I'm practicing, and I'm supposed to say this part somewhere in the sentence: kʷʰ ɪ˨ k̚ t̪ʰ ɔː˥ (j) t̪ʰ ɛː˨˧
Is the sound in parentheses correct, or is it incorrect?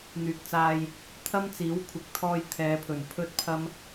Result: correct